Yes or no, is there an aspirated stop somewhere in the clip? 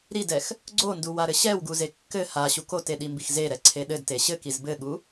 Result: yes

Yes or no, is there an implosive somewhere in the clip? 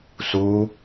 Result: no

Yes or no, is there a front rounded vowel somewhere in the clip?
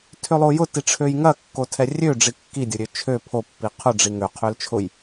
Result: yes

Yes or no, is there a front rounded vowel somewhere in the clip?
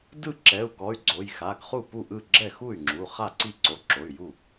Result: yes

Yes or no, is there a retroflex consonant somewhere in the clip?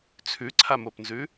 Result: no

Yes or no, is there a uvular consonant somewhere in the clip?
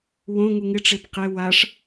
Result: yes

